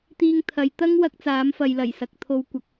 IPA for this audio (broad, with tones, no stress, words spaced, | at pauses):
t̪iː˧ŋt̪ʰɐ˨˧j t̪ɐ˥ŋwɐ˧k̚ t͡saː˨˥mfɐ˨jlɐ˨˩j sɐ˨k̚t̪ʰo˧w kʷɐ˨k̚